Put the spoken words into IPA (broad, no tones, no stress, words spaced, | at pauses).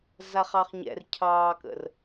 zaχɑχɲɛ̰r cʰɑːkə̰r